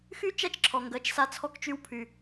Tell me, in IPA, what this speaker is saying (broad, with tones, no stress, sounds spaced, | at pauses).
x y˦ t͡ʃ æ˦ t͡ʃ ǁʰ ɔ˨ ŋ ɡ ɜ˨˦ t͡ʃ s a˧ t͡sʰ ɔ˧ k t͡ʃ y˧ w pʰ y˨